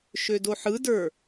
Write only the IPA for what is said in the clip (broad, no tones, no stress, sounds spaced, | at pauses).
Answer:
ʃ ø d o ħ ɯ d ə˞